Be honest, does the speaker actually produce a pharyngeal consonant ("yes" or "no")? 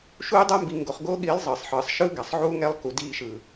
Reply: yes